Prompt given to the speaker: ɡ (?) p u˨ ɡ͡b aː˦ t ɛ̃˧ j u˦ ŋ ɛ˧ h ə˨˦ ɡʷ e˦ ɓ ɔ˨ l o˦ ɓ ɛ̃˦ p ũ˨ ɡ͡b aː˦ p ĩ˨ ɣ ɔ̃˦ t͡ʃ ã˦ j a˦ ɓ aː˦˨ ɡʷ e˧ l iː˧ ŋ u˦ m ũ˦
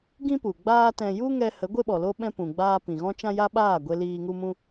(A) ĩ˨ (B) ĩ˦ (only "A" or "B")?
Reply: B